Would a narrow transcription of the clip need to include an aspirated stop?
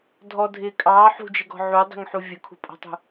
yes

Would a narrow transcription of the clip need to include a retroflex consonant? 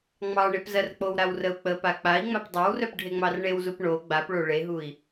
yes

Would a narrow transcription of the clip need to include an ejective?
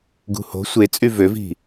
yes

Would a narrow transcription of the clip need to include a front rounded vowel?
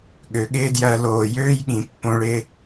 yes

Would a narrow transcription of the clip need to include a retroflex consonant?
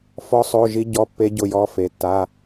no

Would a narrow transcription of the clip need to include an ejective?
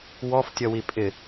yes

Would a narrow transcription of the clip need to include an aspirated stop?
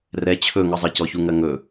yes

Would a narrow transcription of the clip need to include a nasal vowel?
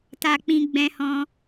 yes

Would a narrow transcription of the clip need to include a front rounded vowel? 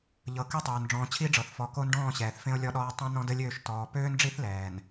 yes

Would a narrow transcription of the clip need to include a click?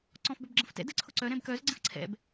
yes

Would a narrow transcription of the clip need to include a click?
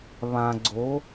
yes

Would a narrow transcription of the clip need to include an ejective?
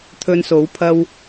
no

